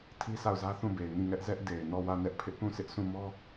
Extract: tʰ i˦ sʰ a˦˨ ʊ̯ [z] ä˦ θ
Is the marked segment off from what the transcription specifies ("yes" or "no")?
no